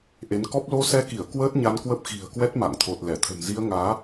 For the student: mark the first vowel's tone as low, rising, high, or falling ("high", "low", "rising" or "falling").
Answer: rising